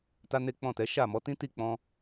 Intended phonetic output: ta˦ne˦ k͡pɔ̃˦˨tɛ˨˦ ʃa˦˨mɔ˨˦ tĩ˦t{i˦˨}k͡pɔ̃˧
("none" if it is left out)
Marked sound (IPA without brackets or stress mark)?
i˦˨